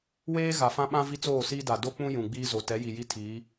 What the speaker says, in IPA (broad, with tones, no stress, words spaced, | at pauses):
weː˦ ɣa˨fã˦ɓã˦ vi˦t͡soː˦˨siː˦da˨ do˦k͡pũ˦ jũ˨ɡ͡biː˦zo˨ tɛ˨˦ji˨ji˦tʰiː˨˦